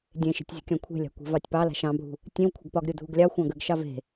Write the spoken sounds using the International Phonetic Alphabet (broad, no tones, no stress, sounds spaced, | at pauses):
dʲ ẽ ʃ e̤ tʲ zʲ ṳ kʲ ɑ̃ kʷʰ e̤ lʲ a̤ kʷ e̤ v ɑ tʲ p ɑ l a̤ ʃ ɑ̃ bʱ ṳ | tʲ ẽ w kʷʰ ə ɡ p ɒ ɡ ɾʲ u dʱ u ɡ lʲ ɑ xʷ ɑ̃ ɡ ə ɡ ʃ ɑ v e̤